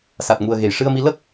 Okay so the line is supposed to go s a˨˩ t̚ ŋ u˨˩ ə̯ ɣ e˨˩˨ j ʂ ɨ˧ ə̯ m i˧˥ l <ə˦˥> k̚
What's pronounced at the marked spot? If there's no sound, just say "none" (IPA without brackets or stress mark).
ə˦˥